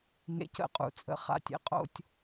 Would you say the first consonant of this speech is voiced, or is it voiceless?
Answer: voiced